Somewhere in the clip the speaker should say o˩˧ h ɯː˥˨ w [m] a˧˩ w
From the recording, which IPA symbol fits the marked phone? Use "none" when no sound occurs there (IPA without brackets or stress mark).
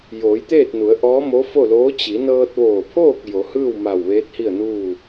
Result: m